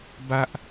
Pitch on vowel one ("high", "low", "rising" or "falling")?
high